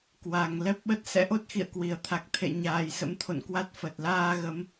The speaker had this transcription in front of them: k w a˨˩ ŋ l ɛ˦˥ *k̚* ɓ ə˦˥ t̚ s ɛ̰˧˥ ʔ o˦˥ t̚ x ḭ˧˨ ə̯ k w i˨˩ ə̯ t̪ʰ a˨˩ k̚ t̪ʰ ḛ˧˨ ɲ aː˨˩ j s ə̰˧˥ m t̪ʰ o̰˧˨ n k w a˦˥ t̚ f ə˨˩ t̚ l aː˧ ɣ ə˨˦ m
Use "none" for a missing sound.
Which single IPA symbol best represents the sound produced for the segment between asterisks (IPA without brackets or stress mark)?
p̚